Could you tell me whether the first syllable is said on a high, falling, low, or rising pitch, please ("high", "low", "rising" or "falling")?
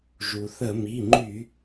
low